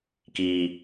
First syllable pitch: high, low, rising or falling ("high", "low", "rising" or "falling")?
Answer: high